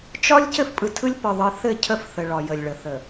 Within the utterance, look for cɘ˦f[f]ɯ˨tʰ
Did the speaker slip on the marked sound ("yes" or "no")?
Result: yes